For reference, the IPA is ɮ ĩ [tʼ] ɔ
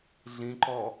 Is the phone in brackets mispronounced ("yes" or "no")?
yes